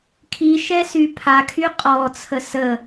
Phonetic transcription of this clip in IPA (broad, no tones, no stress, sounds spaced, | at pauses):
kʰ i ʃ ɛ s y pʰ a kʰ y qʼ ɔ t͡sʰ ə s ə